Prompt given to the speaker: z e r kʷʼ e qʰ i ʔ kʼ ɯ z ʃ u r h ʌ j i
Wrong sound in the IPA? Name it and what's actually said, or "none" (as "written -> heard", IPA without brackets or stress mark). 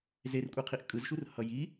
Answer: none